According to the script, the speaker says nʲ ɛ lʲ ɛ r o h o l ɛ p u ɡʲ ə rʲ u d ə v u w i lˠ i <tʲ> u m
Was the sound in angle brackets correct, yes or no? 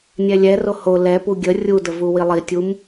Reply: yes